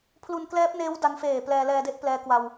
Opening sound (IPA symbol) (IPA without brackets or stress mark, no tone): pʰ